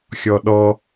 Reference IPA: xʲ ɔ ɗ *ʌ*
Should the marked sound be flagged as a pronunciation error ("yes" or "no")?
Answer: yes